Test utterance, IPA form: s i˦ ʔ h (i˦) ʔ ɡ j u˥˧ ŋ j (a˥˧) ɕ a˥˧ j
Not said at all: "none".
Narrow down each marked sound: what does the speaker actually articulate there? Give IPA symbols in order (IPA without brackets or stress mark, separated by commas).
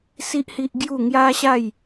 i˦, a˦